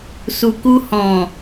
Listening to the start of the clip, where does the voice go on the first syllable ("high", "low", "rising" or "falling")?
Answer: low